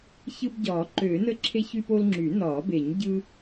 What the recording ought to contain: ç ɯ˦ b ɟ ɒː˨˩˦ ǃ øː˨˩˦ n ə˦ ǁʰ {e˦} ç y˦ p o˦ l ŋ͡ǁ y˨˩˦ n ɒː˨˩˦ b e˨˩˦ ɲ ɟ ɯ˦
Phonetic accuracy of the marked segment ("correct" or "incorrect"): correct